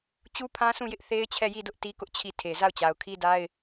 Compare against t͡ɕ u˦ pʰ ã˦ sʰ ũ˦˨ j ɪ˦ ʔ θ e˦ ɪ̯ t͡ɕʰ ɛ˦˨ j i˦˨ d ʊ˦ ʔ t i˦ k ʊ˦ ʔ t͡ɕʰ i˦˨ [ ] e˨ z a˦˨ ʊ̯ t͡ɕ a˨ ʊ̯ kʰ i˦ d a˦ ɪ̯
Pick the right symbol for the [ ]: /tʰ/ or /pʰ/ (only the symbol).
tʰ